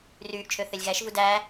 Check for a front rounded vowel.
present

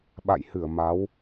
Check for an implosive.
present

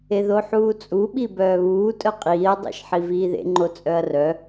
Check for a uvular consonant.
present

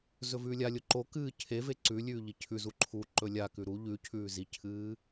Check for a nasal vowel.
absent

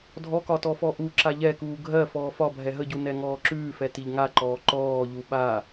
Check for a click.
present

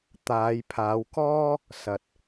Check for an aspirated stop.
present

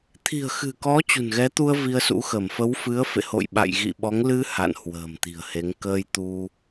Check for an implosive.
present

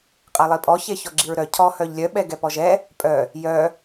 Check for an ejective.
present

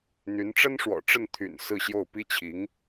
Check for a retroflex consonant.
present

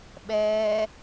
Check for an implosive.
present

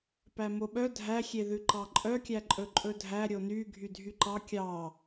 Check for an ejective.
present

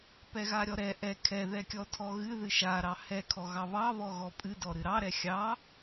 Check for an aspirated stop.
present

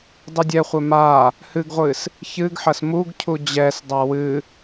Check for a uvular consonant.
present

